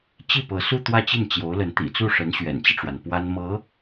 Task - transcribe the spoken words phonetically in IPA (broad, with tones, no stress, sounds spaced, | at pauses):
t͡ɕ i˥˩ p ɤ˧˥ s u˥˧ t̪ w ä˥˧ t͡ɕ i˥˩ n t͡ɕ j o˧˥ ʊ̯ l ə˧˥ n t̪ ḭ˨˩ t͡s u˥˩ ʂ ə˧˥ n ɕ ɥ ɛ̰˨˩ n t͡ɕ i˦ ʈ͡ʂ w a˩ n p w a˥ n m ɤ˧˥